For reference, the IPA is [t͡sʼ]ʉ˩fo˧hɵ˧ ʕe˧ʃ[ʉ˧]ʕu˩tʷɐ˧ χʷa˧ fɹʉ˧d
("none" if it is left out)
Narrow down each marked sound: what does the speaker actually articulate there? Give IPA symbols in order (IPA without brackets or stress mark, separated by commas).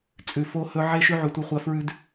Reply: t͡sʼ, ʉ˧